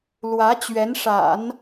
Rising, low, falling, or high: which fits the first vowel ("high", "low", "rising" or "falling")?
rising